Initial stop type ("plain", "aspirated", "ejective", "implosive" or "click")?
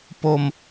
plain